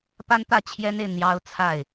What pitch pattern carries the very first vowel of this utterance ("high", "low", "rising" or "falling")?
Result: high